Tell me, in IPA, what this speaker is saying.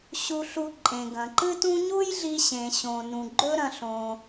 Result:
ɕ u˧ ɬ u˧ ǃʼ ẽ˩ ɡ ɐ̃˩ ǃ ɨ˥ t ũ˥ ɲ u˥ j ɮ i˧ ɕ ẽ˩ ɕ õ˩ n ũ˩ ɡ͡ǃ ɵ˥ ɾ ɐ̃˧ ɬ õ˩

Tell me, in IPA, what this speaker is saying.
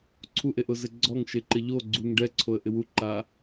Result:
ǀʰ u ʔ e ʔ ʊ z ɪ ɡ͡ǀ ɔ ŋ ʃ e ǃ ɪ ʎ o ɡ͡ǀ u ŋ ɖ ɛ ǀʰ o ə̯ ʔ ɪ w u ǃ a

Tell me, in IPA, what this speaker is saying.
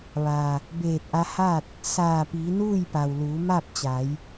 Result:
ʋ a˩ | b eː˧˩ t̚ ʔ a˧ h a˥˨ t̚ | s aː˧˩ p iː˩˧ n uː˥˨ j p a˩ w l uː˩˧ m a˥˨ p̚ t͡ɕ a˩˧ j

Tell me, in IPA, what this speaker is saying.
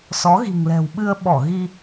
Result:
s ɔ˨˦ ɣ i̤˨˩ ŋ l ɛ̤˨˩ w ɓ ɨ˧ ə̯ ɓ ɔ˧˩ ɣ i˧

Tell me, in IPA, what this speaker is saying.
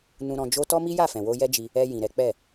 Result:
n ũ˧ ɾ ɔ̃˧ d͡ʒ o˦ t ɔ˦ m i˦ j a˦˨ f ɛ̃˨ w o˧ j ɛ˦ d͡ʒ i˧ | ɛ˧ j ĩ˨ ɾ ɛ˨˦ k͡p ɛ˦˨

